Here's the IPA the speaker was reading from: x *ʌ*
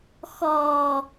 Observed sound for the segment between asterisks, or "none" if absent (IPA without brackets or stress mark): ɔ